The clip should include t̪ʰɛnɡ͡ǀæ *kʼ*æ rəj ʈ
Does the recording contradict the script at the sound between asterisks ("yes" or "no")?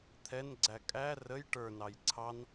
no